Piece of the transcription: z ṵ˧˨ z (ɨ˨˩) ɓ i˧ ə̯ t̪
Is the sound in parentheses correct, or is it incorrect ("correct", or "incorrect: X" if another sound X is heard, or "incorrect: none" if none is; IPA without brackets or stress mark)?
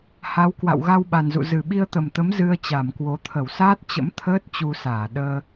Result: correct